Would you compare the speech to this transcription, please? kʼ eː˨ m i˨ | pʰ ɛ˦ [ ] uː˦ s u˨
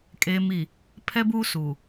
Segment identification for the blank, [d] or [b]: b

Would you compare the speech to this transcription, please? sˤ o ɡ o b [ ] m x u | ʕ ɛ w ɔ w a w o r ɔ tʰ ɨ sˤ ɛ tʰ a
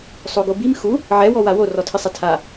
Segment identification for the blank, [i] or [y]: i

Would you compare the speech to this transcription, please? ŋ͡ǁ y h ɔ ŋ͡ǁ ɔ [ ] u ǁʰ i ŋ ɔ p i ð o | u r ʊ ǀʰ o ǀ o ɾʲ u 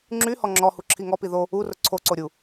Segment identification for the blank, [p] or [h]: h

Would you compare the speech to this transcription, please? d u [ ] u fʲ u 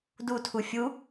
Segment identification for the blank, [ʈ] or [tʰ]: tʰ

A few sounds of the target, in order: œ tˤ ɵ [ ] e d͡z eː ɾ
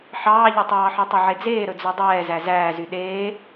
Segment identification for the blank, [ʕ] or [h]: ʕ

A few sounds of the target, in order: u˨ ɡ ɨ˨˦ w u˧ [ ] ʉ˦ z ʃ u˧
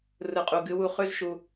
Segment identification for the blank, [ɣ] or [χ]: χ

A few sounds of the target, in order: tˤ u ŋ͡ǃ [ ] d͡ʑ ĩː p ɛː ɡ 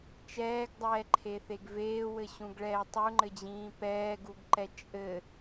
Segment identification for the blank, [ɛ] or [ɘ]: ɘ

